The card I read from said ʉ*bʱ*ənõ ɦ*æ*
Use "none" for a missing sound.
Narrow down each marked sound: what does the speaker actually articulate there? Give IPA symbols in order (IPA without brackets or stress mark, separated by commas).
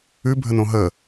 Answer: bʱ, ə